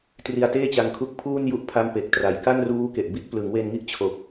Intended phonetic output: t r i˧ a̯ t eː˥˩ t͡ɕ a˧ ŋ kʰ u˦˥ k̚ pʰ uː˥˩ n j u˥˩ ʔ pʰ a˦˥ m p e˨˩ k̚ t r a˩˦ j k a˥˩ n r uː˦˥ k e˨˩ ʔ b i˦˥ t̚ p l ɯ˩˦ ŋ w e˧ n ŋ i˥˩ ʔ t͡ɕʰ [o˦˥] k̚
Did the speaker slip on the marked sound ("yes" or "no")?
yes